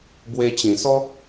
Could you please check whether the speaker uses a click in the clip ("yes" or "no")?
no